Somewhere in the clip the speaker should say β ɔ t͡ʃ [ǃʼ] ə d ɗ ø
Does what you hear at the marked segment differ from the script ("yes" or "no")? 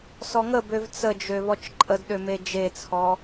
no